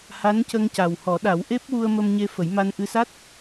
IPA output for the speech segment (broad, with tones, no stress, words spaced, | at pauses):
ha˧˥ncə˧ŋca˨˩whɔ˨˩˦ ɗa˨˩˦wʔe˦˥p̚wu˧ə̯ mə˧mɲe˧ fə˨˩˦jma˧nʔɨ˧ sa˦˥t̚